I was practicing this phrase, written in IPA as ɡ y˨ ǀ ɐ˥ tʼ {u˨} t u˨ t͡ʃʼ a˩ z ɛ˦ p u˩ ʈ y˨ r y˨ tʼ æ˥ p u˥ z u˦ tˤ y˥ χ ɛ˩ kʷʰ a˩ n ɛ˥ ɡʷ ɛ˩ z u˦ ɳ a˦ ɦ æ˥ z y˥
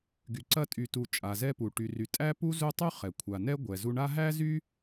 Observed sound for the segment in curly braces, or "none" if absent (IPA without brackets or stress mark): y˨